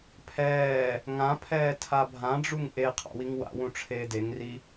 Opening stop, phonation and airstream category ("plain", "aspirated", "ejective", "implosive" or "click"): aspirated